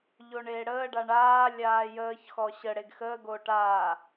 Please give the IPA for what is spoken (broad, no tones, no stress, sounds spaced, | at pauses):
ʎ o ɳ eː ɽ əː ɖ a ɳ aː lʲ aː j əː ç x ɔ ɕ ə ɽ e ɡ x əː ɡ oː ʈ aː